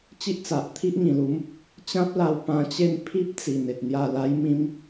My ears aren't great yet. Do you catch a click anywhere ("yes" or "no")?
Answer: no